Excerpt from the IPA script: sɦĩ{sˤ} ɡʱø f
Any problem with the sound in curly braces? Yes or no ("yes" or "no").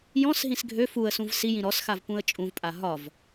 yes